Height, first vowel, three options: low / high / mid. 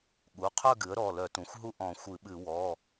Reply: high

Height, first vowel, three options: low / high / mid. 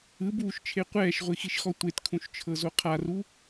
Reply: high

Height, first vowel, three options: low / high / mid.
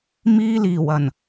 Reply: high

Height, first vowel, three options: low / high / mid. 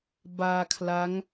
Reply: low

